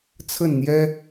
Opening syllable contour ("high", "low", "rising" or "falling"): falling